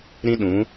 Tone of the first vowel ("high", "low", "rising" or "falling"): high